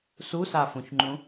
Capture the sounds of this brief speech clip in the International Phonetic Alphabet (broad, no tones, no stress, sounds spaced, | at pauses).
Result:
s u s a f õ ç ŋ͡ǃ ũ